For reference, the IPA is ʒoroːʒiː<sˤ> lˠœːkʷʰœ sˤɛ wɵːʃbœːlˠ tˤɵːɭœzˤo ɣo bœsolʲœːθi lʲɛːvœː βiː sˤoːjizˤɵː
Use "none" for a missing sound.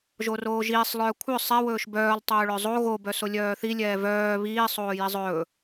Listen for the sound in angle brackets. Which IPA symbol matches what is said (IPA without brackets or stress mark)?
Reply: sˤ